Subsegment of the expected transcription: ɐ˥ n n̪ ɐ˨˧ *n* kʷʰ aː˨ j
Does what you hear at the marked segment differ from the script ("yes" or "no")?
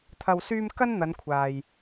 no